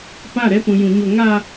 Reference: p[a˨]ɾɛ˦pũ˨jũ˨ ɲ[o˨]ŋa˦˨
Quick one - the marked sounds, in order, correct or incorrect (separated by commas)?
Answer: incorrect, correct